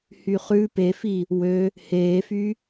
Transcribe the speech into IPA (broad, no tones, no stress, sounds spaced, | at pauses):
h y χ ʉ p e f i | w ø | h eː f y